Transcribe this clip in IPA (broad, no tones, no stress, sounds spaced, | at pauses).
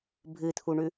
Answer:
bʱ ɨ t̪ʰ u ɳ ʉ